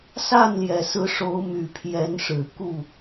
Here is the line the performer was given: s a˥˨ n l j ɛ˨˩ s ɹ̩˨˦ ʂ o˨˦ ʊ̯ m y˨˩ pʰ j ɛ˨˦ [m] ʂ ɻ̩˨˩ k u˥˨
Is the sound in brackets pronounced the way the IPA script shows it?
no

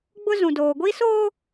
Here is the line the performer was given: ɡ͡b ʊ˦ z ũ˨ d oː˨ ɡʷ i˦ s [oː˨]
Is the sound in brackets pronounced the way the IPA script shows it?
no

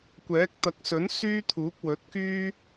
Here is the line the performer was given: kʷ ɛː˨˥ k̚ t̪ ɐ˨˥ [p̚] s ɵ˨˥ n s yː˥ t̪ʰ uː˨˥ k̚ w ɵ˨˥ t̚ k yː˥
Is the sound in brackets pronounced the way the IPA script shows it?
no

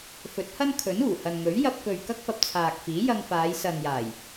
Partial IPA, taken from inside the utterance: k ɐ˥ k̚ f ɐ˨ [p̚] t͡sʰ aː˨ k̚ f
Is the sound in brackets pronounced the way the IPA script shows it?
yes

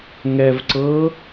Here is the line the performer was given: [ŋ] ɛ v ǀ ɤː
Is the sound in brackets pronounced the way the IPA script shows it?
yes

